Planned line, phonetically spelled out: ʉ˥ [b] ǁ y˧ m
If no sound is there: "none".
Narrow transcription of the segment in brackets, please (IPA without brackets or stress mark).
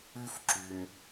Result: f